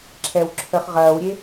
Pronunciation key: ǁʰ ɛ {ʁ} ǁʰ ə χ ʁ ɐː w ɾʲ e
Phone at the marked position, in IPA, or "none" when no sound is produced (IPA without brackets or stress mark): w